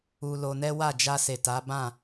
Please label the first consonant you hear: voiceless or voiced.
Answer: voiced